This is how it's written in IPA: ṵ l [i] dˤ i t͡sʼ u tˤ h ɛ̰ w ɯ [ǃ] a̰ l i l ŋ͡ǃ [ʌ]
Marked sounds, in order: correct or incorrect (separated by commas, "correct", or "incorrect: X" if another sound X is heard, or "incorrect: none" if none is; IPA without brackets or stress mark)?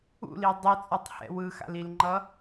correct, incorrect: x, correct